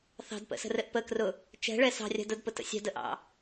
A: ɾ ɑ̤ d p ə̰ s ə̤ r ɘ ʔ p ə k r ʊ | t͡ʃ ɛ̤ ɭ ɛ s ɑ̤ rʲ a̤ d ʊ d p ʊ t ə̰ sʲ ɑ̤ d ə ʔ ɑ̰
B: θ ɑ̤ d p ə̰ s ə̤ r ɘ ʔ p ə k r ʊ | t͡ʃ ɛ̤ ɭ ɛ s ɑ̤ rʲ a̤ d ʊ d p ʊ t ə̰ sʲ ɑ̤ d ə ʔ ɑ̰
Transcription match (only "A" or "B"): B